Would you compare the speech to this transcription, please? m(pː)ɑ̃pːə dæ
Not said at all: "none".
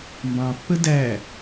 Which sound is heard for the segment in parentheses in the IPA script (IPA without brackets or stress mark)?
b